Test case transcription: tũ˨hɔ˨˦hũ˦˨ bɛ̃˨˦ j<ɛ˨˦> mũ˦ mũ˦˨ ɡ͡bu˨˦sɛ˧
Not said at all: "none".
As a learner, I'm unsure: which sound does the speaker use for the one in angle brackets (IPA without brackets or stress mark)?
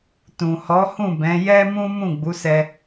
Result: ɛ˦